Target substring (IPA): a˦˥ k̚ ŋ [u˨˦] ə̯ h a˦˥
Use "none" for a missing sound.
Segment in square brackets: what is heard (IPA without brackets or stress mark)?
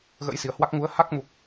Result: u˨˦